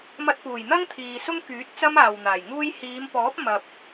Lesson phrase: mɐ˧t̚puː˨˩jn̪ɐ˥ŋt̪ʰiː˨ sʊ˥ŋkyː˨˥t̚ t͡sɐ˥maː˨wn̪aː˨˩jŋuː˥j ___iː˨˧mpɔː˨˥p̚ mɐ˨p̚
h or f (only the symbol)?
h